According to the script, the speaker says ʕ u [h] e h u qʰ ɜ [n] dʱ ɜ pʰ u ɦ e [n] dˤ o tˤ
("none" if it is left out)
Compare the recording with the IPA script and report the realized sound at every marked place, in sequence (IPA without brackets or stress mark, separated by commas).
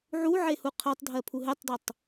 ʕ, tˤ, tˤ